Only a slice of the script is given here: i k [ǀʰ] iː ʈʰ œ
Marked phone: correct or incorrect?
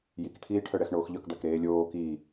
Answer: incorrect